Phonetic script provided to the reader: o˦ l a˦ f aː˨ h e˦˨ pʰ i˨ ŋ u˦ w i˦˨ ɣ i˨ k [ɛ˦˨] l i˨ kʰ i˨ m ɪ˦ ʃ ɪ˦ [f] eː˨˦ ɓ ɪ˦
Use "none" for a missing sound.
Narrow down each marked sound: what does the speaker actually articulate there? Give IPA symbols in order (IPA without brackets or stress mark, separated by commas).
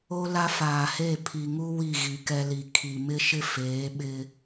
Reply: ɛ˦, f